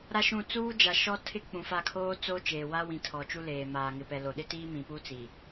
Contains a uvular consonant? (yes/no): no